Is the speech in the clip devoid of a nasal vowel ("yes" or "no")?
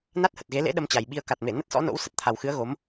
yes